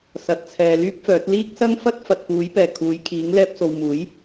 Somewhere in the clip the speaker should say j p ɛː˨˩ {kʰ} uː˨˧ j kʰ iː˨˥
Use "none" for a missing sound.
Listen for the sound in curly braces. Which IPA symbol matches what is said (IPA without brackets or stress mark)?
kʰ